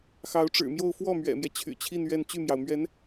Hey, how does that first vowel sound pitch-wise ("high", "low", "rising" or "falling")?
rising